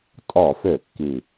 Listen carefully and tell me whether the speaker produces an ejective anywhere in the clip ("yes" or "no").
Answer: yes